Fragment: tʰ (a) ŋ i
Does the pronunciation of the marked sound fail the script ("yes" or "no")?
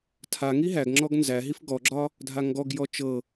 no